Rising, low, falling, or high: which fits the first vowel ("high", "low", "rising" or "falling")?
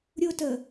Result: high